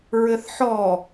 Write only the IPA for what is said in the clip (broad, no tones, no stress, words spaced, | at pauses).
ɹɘθħɔ